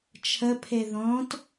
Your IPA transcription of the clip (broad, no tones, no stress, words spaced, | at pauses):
t͡ʃʰəpʰe ðɔ̃t